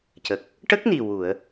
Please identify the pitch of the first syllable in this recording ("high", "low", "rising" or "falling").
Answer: low